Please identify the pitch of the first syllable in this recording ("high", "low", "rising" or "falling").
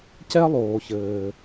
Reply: high